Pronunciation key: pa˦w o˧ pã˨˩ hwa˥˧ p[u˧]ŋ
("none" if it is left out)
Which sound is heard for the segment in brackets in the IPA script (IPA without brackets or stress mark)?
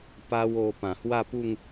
u˥˧